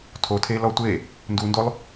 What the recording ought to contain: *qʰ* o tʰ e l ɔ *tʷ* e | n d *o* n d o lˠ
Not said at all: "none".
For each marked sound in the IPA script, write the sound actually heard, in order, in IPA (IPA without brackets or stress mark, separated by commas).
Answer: tʰ, tʷ, u